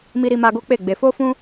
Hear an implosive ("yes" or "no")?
no